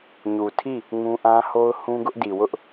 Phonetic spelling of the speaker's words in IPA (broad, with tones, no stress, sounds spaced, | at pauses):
ɲ u˨ tʰ i˦˨ | ŋ ũ˦ ʔ ã˦ h o˦ ʊ̯ h ũ˦ ɡ ʊ˦ ʔ d i˨ w ʊ˦ ʔ